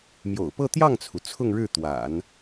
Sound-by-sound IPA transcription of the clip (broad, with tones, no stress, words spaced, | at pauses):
mjo̰˨˩ʊ̯pɤ˥˧ t̪jɑ˥˩ŋt͡sʰu˩ t͡sʰʊ˥˧ŋɻɻ̩˥˩t̪wa̰˨˩˦n